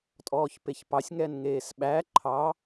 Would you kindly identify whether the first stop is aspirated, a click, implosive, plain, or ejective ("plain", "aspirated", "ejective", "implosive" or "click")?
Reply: ejective